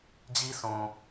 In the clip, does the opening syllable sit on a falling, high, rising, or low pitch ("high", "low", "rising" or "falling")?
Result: high